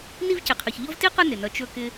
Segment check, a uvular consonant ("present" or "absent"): present